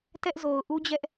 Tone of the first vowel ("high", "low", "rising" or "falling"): high